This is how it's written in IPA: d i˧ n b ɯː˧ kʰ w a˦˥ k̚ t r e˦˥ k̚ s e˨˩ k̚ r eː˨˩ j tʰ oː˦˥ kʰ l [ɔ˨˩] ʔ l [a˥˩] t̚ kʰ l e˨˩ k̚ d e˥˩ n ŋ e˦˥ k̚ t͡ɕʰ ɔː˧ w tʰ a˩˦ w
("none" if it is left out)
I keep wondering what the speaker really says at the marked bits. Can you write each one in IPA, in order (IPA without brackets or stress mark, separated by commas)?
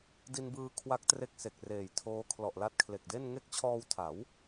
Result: ɔ˨˩, a˦˥